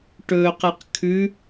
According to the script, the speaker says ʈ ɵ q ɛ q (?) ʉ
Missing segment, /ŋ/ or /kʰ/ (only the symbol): kʰ